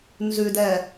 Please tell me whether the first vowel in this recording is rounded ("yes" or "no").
yes